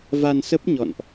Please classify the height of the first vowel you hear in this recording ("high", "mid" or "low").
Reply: low